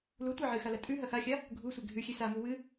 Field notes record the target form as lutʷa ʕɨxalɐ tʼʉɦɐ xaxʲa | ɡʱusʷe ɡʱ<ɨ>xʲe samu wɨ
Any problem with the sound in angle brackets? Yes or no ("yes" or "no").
yes